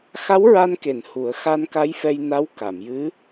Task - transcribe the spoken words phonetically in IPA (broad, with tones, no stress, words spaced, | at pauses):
xa˧˥w ɹa˧nke˨˩˨n hu˨˩˦ə̯xa˧nka˧˥j fɛ˧jna˧˥w ka˨˩˨mjɨ˧˥